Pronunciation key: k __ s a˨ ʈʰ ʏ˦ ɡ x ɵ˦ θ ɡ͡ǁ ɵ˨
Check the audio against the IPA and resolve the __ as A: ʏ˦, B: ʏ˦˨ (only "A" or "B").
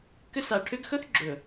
A